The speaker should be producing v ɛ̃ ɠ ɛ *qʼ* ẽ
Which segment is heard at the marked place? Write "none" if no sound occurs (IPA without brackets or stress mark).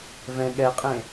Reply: qʼ